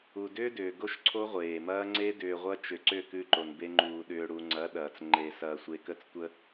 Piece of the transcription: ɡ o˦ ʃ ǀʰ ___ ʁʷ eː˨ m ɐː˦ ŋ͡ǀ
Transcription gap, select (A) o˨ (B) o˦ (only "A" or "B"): B